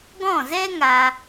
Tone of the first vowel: falling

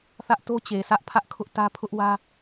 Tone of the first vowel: high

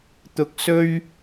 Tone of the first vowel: low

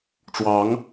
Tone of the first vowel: rising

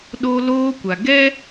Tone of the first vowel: high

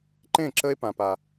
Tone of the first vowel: falling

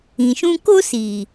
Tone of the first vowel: low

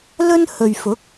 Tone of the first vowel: high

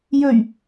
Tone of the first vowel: low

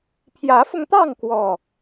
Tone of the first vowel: rising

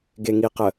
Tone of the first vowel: low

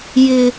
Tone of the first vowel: low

